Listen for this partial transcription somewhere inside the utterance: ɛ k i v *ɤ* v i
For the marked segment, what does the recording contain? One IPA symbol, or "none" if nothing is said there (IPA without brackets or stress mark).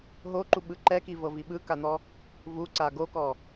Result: ɤ